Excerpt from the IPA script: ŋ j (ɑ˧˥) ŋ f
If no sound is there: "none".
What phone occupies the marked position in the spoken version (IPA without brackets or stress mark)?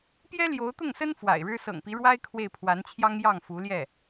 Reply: ɑ˥˩